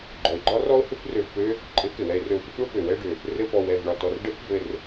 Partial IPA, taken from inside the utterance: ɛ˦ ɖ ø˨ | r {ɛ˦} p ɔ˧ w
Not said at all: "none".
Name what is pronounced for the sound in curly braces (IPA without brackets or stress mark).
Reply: ɘ˦